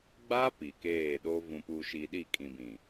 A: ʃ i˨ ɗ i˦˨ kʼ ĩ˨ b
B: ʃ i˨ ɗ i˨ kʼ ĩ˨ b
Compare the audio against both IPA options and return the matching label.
A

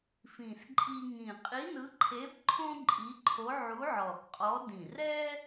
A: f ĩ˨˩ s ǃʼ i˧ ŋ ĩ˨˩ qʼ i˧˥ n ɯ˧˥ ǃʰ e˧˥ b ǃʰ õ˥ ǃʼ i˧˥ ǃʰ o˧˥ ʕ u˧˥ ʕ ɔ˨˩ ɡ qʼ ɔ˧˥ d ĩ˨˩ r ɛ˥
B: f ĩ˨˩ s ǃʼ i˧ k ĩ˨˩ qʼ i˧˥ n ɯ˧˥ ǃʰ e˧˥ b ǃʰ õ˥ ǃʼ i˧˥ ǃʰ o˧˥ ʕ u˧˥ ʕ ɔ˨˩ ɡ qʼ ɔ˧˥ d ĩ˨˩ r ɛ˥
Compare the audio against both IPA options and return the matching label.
A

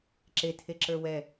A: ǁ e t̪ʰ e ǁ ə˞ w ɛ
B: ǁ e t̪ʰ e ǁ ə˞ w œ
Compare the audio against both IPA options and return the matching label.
A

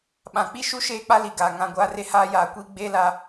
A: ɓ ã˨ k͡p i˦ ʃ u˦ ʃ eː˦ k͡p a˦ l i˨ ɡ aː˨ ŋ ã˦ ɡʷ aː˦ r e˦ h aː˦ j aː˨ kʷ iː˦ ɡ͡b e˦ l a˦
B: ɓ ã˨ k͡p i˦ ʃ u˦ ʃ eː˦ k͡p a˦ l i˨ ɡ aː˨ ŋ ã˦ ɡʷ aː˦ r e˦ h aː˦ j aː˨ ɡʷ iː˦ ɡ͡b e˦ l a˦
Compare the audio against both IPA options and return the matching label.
A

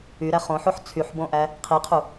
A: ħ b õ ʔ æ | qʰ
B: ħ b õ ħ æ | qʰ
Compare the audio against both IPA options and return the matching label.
A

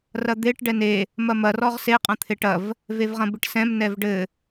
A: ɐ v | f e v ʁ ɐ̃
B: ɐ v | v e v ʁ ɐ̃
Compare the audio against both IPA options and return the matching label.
B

